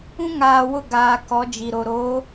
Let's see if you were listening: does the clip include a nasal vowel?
yes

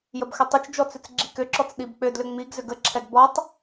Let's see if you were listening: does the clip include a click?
yes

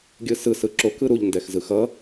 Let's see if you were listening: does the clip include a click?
yes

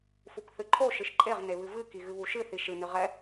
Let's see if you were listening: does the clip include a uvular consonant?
yes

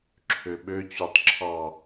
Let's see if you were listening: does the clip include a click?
yes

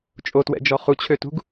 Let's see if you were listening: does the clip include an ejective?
yes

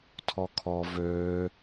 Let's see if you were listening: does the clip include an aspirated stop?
yes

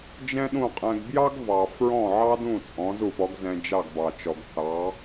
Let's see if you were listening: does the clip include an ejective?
yes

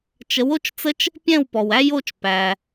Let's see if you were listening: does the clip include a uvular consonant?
no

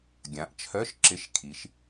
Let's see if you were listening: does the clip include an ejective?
no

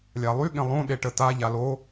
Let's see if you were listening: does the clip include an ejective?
no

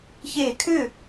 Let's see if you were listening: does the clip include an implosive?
no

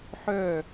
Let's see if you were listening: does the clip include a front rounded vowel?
yes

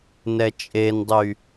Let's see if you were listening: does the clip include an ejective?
yes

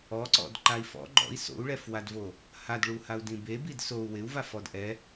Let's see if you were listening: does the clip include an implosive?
no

